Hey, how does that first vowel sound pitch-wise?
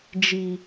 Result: low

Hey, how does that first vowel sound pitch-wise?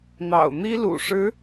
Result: low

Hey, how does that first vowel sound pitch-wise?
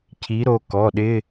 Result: rising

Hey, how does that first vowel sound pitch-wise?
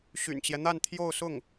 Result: low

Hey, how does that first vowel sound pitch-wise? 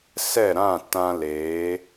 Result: falling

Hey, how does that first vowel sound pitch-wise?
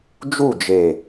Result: falling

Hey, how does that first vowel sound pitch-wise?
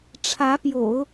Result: rising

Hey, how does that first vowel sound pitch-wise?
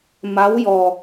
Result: rising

